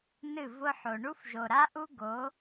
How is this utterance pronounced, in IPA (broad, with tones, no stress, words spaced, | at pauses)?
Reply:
nɨ˦˨ vʊ˦ħo˨ ɳu˦fʒo˨ɾa˦ ʔu˦ɡo˨˦